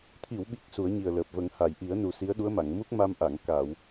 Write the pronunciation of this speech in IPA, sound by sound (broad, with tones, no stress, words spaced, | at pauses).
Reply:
t̪ʰi˨˩˨wɓi˨˩k̚ su˨˩˦ə̯ɲi˨˩ə̯ləː˨˩p̚və˨˩˦ŋ ha˨˩˨j ʔi˨˩˦ə̯nu˨˩ si˧˥ə̯ɗu˧˥ə̯ma˨˩˨ŋ mu˦˥k̚ ma˧m ʔa˨˩˨ŋ kaː˨˩˨w